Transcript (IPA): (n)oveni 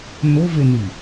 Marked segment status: correct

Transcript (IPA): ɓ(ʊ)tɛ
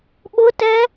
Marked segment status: correct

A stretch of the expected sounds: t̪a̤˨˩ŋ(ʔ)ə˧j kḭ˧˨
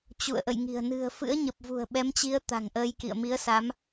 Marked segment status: correct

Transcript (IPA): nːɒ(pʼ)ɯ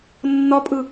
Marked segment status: correct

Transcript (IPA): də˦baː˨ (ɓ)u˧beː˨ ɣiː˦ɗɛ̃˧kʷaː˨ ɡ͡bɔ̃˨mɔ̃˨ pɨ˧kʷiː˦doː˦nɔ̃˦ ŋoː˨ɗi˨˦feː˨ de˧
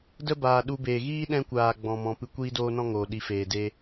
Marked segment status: incorrect: ɗ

